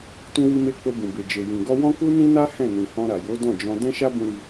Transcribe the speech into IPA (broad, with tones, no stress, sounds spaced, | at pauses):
t ũ˧ w i˧ m e˧ k͡p o˧ b ũ˨ b e˨ d͡ʒ e˨ j ĩ˨ ɡ ɔ˧ w ɔ̃˦ k u˦ n ĩ˦ n a˦ h ɛ̃˦˨ n ĩ˨ h ɔ̃˧ ɾ a˨ j o˨˦ d ɔ̃˦˨ d͡ʒ ɔ̃˧ d ɛ̃˦ ʃ a˦ b ũ˧ ɾ i˧